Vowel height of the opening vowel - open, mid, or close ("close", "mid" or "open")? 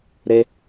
mid